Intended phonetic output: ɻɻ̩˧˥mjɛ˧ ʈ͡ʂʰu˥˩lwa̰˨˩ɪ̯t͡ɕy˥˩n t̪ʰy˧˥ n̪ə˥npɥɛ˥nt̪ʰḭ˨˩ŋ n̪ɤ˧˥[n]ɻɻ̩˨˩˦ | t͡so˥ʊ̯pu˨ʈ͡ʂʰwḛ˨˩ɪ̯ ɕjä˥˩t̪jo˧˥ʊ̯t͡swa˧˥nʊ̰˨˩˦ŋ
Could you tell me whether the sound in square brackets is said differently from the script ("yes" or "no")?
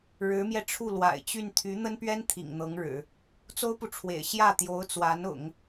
yes